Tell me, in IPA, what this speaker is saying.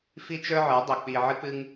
f i˦ t͡ʃ ə˞˦ ʕ ə˞˨˦ dˤ ɵ˨ k͡p i˧ ʕ ɨ˦ k͡p ɨ˦ ŋ

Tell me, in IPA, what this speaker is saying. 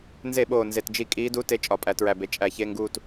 n z e˧˩˧ ɓ oː˨˩ n z e˨˩ t d͡ʒ i˧˩˧ kʼ iː˧˥ d u˧˥˧ t e˦˨ t͡ʃʼ ɒ˧˩˧ pʼ æ˧˩˧ t ɹ æ˨˩ b e˩˥ t͡ʃʼ æ˧˩˧ ç e˧˥˧ ŋ ɡ uː˦˨ t

